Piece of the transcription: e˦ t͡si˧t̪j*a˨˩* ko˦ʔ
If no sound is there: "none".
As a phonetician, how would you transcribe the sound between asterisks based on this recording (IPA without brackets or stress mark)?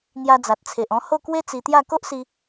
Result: a˥˧